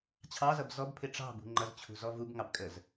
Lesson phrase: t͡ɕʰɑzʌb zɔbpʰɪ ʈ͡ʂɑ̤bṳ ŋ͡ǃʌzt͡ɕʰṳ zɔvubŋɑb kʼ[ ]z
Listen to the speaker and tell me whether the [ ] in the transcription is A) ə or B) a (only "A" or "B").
A